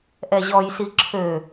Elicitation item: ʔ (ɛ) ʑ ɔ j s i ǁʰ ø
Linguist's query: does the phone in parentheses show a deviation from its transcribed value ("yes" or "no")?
no